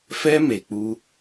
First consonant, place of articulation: labial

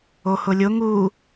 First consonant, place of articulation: glottal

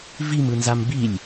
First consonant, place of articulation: labial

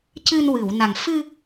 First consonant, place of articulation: palatal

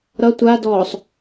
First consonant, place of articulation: alveolar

